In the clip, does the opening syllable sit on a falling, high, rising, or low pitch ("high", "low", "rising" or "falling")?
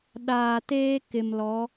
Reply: low